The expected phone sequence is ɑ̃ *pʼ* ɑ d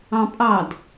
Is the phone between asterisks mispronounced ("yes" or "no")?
no